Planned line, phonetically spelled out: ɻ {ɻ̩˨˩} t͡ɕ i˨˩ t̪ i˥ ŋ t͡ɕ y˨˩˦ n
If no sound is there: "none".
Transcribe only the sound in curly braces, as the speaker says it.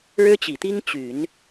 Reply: ɻ̩˥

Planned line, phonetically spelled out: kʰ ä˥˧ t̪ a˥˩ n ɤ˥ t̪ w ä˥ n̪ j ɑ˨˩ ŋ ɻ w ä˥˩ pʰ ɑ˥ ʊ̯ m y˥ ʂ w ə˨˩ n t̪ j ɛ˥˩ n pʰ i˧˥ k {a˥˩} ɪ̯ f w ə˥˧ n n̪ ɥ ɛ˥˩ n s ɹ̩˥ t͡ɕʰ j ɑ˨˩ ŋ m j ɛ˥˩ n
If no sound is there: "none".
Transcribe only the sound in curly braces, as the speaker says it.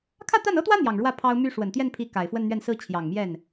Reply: a˨˩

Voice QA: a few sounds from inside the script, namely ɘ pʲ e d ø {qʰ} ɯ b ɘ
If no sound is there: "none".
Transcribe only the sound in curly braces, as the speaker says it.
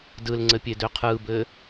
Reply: qʰ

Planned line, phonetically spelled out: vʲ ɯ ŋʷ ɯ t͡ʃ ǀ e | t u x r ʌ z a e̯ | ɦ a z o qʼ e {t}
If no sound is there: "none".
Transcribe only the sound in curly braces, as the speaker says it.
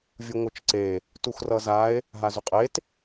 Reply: t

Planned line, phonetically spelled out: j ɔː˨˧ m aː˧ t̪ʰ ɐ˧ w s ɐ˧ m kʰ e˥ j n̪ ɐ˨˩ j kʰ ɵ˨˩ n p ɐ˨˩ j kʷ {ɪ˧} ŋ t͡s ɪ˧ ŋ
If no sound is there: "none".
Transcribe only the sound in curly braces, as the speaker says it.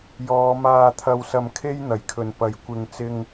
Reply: ɪ˨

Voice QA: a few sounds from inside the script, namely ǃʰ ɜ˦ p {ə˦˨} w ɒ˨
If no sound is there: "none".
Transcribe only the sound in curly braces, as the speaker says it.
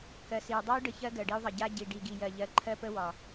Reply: ə˦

